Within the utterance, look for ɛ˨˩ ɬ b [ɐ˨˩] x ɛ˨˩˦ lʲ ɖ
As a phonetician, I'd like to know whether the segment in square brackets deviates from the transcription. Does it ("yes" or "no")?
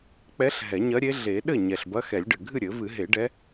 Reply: yes